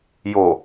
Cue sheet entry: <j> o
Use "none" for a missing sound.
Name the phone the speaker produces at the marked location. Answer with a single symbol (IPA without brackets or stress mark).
j